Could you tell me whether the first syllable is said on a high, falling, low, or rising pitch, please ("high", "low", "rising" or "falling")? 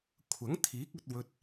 rising